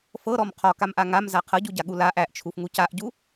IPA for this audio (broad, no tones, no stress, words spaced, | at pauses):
fɤɾɔm qʰɔkamʔa ŋamza qʰɤɟuɟaɠu laʔ æʔt͡ʃʰufŋu caʔɟu